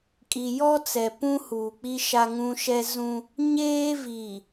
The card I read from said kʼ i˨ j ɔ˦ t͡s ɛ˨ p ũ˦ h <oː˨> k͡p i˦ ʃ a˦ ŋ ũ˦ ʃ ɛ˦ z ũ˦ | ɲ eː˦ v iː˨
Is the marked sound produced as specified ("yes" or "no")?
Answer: no